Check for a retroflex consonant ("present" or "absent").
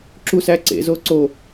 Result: absent